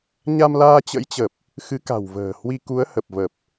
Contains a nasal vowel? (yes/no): no